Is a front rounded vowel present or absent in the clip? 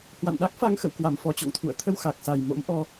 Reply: absent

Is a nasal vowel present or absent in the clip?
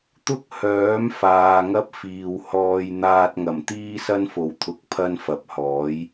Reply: absent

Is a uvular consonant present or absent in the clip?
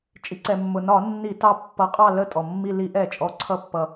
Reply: present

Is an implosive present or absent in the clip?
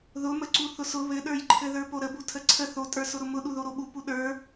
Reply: present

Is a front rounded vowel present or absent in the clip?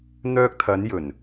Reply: present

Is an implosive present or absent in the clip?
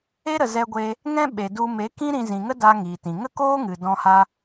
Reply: present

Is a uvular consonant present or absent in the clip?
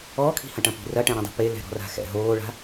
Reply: absent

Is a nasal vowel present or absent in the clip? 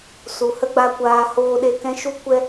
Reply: present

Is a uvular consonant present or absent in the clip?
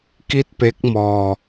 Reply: absent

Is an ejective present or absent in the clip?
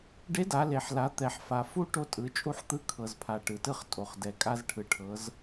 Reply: present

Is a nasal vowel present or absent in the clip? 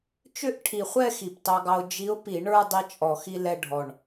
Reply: absent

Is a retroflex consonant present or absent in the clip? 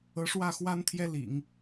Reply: present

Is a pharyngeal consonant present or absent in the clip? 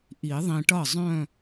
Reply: absent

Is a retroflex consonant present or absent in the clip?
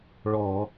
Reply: present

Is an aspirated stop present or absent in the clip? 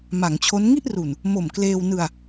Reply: present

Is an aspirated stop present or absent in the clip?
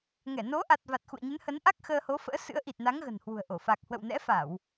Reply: absent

